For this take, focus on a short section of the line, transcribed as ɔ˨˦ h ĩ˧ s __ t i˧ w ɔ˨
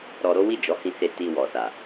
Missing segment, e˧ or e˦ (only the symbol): e˧